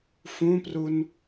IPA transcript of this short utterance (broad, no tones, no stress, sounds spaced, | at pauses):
f ũ p r u n